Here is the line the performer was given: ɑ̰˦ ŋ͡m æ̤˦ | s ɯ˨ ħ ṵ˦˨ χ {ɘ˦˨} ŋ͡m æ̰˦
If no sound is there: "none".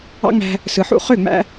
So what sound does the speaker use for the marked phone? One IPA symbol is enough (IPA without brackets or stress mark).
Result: ø˦˨